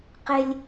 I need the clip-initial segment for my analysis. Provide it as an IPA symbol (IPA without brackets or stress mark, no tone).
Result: q